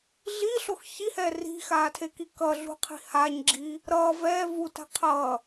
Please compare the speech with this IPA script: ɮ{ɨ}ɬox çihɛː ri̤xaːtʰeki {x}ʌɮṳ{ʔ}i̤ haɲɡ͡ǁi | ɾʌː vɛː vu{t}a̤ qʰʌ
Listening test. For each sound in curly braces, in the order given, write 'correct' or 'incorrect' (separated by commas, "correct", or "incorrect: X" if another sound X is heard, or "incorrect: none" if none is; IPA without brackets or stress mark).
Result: incorrect: i, incorrect: k, incorrect: qʰ, correct